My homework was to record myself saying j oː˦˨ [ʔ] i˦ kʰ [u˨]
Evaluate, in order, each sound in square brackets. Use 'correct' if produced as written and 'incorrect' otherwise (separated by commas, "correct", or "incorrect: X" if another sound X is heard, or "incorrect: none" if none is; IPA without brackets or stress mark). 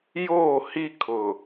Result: incorrect: h, incorrect: ʊ˨